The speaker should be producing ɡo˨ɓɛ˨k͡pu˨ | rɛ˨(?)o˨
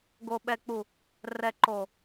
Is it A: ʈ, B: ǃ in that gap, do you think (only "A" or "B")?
B